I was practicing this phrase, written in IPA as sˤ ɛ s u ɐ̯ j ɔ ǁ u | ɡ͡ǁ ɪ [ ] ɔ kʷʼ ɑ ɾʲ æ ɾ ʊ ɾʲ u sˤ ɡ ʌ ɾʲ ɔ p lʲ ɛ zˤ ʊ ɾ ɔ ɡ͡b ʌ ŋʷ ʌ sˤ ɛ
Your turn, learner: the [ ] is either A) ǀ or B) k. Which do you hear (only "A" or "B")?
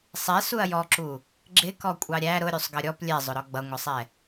B